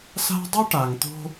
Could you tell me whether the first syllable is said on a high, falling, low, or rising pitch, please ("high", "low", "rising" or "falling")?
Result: high